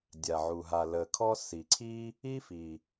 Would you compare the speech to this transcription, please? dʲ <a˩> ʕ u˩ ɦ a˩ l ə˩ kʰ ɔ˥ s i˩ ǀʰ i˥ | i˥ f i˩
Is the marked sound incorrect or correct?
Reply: correct